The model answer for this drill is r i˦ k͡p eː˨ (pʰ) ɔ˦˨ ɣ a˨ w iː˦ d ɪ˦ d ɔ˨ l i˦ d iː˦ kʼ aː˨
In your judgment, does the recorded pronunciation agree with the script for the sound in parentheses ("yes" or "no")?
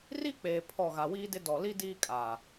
yes